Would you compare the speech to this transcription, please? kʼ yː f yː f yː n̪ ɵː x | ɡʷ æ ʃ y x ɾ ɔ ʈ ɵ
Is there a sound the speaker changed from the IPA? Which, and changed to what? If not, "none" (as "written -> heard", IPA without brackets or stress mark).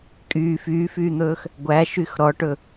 none